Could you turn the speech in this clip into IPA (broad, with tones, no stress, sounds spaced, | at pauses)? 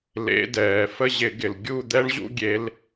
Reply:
l ḛ˨˦ d ɛː˩ f ə˥˧ ʑ ɪ˧˩˧ ɡ ɪ˩ l ɡʲ u˥˧ d̪ ɛ˦˥ ɳ ʑ ṵ˨˦ ɡʲ e˨˦ l